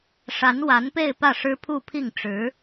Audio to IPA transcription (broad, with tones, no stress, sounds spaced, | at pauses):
ʂ a˧˥ n w a˧˥ n p e˥˧ ɪ̯ p ä˥˩ ʂ ɻ̩˥ pʰ u˥˧ pʰ i˥˩ ŋ ʈ͡ʂ ɻ̩˧˥